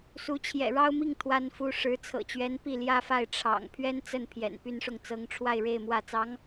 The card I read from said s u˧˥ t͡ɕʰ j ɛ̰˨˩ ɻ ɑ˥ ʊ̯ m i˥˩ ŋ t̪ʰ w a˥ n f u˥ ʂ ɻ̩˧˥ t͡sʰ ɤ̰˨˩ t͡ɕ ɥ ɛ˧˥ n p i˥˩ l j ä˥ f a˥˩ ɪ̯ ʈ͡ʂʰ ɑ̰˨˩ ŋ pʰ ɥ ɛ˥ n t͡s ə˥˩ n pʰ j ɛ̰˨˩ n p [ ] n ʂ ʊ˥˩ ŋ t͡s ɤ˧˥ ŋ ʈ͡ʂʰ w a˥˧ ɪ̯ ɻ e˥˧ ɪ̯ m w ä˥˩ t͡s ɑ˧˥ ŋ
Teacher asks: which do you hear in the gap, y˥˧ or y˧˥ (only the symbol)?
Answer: y˥˧